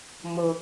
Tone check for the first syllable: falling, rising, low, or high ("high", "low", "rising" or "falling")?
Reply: high